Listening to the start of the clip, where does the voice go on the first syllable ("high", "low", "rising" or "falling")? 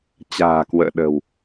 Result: low